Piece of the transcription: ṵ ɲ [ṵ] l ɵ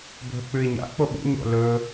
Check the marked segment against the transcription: incorrect: o̰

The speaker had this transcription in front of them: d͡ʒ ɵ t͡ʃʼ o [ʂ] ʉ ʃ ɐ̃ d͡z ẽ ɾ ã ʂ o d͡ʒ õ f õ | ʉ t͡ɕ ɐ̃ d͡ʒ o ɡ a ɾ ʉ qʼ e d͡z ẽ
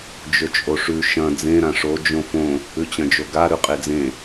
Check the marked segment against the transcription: correct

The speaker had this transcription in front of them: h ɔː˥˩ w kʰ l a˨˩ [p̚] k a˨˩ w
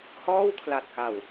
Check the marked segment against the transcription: incorrect: t̚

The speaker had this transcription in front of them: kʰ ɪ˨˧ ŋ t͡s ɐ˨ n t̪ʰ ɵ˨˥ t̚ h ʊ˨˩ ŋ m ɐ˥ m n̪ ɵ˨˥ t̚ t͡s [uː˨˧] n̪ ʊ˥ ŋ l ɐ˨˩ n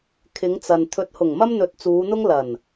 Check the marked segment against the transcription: correct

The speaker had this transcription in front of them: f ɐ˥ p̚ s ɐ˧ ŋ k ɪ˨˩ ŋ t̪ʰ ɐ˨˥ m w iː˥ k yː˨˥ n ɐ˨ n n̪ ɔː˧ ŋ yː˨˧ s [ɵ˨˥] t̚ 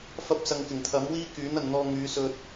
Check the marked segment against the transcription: incorrect: ɵ˧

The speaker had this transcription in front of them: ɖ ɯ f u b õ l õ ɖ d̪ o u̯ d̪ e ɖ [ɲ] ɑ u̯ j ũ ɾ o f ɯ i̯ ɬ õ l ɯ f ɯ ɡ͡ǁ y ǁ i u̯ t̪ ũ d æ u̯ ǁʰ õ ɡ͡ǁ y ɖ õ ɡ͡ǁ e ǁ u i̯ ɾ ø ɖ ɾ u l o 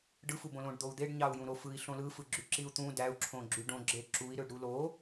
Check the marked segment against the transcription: correct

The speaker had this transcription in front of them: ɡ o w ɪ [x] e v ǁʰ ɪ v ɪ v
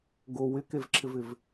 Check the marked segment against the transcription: incorrect: k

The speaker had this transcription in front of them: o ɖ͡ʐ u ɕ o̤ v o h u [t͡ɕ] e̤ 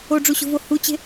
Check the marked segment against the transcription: correct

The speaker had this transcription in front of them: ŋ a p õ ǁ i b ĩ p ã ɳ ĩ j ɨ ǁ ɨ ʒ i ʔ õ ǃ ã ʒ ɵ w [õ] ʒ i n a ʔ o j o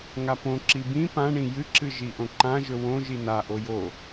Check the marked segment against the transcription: correct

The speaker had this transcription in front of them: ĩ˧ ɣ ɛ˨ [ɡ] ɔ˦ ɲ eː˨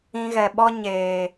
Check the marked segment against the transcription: incorrect: ɓ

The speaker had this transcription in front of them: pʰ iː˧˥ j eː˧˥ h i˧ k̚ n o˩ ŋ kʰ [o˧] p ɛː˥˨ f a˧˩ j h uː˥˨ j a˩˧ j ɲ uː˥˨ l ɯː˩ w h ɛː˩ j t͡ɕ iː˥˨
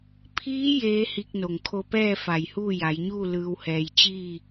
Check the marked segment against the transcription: correct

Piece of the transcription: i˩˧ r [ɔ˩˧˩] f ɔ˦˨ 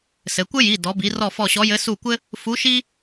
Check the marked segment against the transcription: incorrect: ɔ˦˨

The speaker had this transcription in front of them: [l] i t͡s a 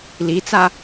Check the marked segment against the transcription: correct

